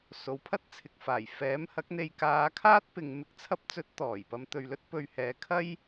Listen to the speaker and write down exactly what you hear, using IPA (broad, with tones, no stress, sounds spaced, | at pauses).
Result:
s o˨˧ w pʰ ɐ˥ t̚ t͡sʰ ɪ˨ k̚ f aː˨˩ j f ɛː˨˥ m h ɐ˨˥ k̚ n̪ e˧ j k aː˨˧ kʰ aː˥ t̚ p ɪ˨ ŋ m ɪ˨˥ k̚ t͡sʰ ɐ˧ p̚ t͡s ɵ˨˥ t̚ t̪ ɔː˨˩ j p ɐ˨˧ m t̪ ɵ˨ ɥ l ɵ˥ t̚ p ɵ˨ ɥ h ɛː˨ kʰ ɐ˥ j